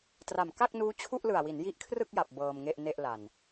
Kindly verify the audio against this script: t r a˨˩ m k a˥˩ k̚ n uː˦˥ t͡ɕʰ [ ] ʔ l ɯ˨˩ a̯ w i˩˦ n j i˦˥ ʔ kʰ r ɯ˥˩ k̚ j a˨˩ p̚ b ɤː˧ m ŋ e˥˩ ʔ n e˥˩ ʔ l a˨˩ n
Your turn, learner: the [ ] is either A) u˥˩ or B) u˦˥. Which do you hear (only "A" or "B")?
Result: A